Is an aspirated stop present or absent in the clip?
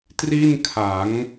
present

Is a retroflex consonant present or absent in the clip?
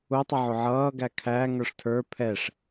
present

